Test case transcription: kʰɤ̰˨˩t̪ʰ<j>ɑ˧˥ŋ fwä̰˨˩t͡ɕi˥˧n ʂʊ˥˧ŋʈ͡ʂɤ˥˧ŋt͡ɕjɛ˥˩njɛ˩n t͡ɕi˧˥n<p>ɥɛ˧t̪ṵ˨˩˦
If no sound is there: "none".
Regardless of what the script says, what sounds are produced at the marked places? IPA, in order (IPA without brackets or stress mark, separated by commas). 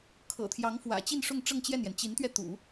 j, t̪